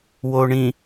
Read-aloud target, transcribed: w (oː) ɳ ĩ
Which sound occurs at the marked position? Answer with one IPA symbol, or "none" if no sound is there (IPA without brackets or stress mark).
o